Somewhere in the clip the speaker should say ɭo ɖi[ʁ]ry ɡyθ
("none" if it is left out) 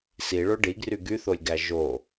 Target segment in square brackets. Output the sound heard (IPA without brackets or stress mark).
ɡ